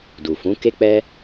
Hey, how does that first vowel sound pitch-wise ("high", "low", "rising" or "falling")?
low